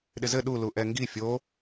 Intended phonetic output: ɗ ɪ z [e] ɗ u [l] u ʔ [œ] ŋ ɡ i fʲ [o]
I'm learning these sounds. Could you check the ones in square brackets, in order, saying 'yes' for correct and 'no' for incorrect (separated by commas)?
no, yes, no, yes